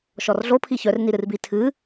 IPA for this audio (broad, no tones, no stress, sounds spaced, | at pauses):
ʃ ɔ r ɮ o pʰ i ç œ r n i ɾ ɨ r b i tʰ ɨ